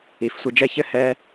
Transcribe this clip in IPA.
i˩˧ f sʷ i˧ d͡ʒ ɛ˥˧ ç ɘ˥ h ɛ˧

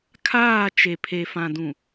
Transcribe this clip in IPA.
kʰ aː˦˨ t͡ʃ e˨ pʰ e˨ f ã˨ d ũ˨

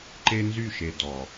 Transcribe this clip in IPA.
ǃ e˦ n z y˦˨ ʃ e˨ d ɔ˨

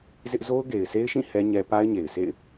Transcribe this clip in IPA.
z ɪ˦ ʔ z o˦ ʊ̯ ɡ e˨ ɪ̯ s e˦ ɪ̯ ʃ ĩ˦˨ h ɛ˦ ɲ ɛ˦ p a˦ ɪ̯ ɲ e˨ ɪ̯ s ḛ˦˨ ɪ̯

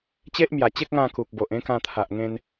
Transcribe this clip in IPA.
t͡ɕ e˦ ʔ m j a˨˩ t͡ɕ e˦ k̚ ŋ ã˥˧ k u˨ k̚ b o˨ ʔ ẽ˦ k ã˧ t̪ʰ a˨ ʔ ŋ ẽ˧ n

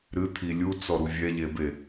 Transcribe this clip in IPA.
ɾ ɨ t̪ʰ i lʲ u t͡s ɔ ɾ u vʲ ɛ ʎ e b e

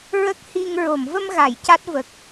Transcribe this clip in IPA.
ɹ ə˦˥ k̚ h i˧ ŋ ɹ o˨˩˨ m v ə˧ m ɣ a˨˩˨ j c a˦˥ t̚ v ə˨˩ k̚

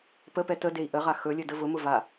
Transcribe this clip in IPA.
p ə p ɛ t ə d e i̯ ʔ ə ʁ a x ɵ lʲ ɘ d ə v ʊ m ʊ v a

